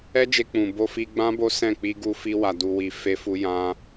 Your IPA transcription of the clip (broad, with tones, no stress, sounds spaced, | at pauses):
ɛ˦ d͡ʒ e˧ k͡p ũ˨ b o˧ f i˧ ɡ͡b ã˦ b o˦ s ɛ̃˦˨ k͡p i˧ ɡ u˧ f i˧ w a˨ d u˨ w i˨ f e˧ f u˧ j ã˧